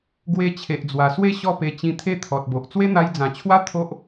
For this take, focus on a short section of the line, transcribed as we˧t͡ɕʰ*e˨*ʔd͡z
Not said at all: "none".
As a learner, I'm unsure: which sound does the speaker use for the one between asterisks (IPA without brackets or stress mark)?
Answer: e˨